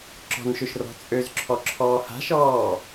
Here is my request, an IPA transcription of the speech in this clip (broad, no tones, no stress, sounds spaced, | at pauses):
ǁ ɔ̤ n ʃ ø ʃ r ɔ̤ t͡sʼ ø z ǁʰ ɔ ǁʰ ɔː h a̤ ʃ ɔː